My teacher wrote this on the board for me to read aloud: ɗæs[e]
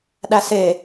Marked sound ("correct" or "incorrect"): correct